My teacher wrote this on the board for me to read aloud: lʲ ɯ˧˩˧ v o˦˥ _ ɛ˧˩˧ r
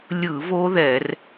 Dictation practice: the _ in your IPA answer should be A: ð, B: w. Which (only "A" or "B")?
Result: A